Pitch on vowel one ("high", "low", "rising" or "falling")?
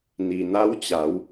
low